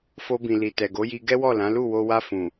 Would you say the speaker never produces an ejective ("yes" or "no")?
yes